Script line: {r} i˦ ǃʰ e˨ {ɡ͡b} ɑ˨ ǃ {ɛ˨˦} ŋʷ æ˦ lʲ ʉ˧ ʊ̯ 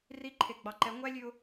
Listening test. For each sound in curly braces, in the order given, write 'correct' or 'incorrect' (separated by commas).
correct, correct, correct